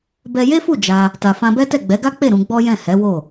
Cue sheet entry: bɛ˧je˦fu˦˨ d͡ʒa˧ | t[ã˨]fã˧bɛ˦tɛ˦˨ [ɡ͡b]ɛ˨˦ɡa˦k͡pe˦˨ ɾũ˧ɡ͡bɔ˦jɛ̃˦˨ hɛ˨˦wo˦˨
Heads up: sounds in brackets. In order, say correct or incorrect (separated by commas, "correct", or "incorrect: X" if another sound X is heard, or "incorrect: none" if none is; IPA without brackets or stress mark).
incorrect: a˨, correct